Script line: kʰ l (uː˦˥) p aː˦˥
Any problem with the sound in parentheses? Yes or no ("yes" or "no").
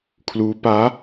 no